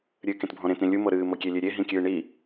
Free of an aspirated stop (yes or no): yes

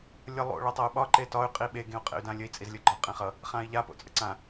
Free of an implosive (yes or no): no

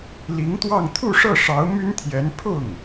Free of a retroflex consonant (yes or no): no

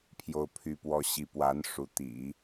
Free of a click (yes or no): yes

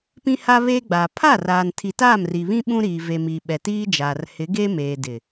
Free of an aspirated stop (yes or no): no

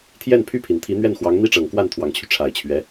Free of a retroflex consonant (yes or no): no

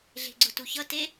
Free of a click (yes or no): no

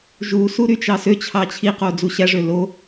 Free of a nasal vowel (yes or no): yes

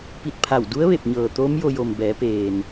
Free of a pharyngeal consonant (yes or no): yes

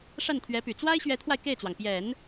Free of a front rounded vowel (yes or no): no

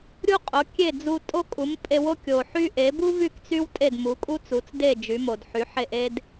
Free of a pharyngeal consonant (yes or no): no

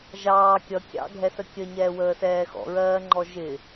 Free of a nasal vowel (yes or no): yes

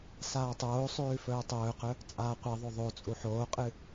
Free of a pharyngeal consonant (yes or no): no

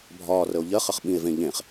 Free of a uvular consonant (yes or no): no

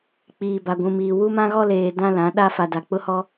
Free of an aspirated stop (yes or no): yes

